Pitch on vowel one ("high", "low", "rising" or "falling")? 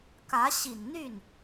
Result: rising